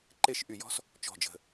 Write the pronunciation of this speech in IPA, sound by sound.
ǃ e˥˧ ʃ ʔ y˧˩ j ɔ̤˥ s | t͡ʃ ɔ̤˧˩ d͡ʒ ə̤˧˩

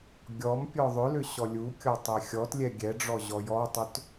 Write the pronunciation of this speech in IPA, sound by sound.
ɡʲ ɔ m pʲ ɔ ðˤ ʏ l ʏ ɕ ɔ lʲ u kʲ ɔ tˤ ɛ xʲ ɔ t lʲ ɛ ɡʲ ɛ ɖ͡ʐ ɔ ʑ ɔ j ɔ tˤ ʏ t

